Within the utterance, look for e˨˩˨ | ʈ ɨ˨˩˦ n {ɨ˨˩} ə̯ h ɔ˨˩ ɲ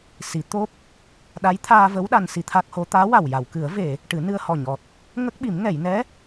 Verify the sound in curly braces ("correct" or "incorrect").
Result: incorrect